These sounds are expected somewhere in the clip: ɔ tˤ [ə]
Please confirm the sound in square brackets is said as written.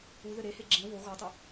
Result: yes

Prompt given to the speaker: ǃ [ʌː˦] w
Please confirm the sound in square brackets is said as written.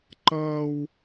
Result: yes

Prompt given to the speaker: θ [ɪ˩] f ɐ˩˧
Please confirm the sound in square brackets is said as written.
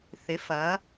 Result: no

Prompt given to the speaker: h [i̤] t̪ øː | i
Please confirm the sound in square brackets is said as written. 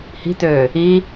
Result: yes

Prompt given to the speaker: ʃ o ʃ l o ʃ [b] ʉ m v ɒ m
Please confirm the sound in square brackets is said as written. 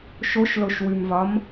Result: no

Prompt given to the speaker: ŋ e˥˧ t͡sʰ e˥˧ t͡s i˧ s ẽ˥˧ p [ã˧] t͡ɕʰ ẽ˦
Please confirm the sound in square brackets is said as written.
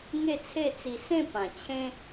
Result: no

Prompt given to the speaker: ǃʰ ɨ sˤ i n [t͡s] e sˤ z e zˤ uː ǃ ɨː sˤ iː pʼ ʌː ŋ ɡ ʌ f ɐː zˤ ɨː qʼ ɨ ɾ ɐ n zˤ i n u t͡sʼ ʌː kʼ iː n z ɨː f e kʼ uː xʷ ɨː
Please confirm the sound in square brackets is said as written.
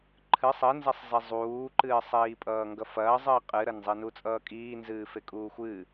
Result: no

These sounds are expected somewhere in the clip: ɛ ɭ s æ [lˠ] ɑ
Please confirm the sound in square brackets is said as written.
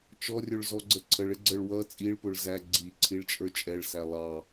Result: yes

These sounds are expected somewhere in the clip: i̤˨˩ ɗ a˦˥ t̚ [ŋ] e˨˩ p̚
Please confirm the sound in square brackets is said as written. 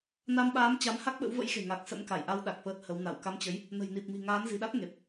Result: yes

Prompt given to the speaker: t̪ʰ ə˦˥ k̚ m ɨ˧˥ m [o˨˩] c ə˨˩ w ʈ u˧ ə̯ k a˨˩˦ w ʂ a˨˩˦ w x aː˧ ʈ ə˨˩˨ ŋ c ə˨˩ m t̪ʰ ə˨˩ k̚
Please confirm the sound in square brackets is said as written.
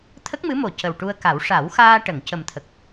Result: yes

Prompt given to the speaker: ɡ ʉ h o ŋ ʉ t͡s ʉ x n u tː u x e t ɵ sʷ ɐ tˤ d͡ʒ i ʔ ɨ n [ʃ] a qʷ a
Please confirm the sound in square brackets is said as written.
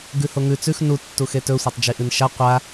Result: yes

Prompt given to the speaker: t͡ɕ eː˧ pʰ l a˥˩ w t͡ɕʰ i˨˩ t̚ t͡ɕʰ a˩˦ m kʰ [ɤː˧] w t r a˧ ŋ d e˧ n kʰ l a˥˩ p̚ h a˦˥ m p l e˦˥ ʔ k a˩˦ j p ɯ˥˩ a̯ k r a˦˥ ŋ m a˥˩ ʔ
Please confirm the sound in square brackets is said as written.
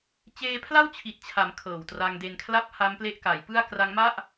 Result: no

